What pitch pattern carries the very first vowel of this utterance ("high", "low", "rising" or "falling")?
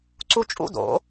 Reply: high